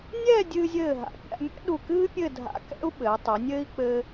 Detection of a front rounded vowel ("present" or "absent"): absent